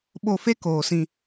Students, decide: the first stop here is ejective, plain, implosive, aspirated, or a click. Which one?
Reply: implosive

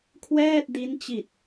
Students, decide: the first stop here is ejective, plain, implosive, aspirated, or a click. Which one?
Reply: aspirated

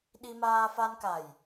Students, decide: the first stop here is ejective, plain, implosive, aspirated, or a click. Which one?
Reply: implosive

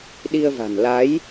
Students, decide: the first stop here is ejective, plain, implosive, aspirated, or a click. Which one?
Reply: implosive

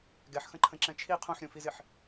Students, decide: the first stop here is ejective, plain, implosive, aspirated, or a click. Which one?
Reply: plain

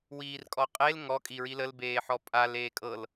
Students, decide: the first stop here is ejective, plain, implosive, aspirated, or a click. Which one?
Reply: ejective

